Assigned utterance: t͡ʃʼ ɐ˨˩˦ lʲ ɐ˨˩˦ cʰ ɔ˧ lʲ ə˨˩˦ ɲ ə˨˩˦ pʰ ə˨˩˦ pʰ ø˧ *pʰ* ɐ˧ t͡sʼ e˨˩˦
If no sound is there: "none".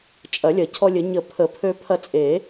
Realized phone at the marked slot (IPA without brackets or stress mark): pʰ